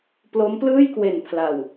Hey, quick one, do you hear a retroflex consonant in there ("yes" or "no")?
no